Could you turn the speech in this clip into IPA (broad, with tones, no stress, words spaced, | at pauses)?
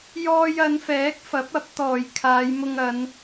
jɔː˧jɐ˨˧nfɛː˨˥k̚ fɐ˨˥p̚ɐ˨˥p̚t̪ɔː˨˩j kʰaː˨˧jmʊ˧ŋ ɐ˨˧n